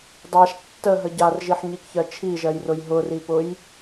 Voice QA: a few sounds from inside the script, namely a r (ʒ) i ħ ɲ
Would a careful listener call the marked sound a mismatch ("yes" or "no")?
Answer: no